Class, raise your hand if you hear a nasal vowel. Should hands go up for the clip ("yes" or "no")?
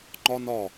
no